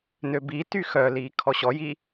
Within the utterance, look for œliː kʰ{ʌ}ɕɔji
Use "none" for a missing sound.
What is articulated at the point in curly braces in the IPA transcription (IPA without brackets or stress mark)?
ɔ